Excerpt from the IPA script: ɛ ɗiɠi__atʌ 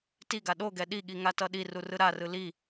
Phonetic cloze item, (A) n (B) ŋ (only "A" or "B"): B